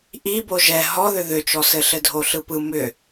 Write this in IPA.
ʔ i b o ʒ ɛ ɦ ɔ ð ʏ ð ʏ t͡ʃ ɔ s ɘ ɬ ɘ dʱ o ɬ ɯ p ɯ m ʏ

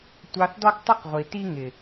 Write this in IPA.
tʷ ɑ˧ θ d ɔ˦ ɡ tˤ ʊ˦ q ʁʷ i˨ t i˦ ŋ ɪ˨

